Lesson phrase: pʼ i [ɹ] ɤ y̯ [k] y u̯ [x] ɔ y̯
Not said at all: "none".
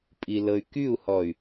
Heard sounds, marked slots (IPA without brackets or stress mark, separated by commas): l, k, h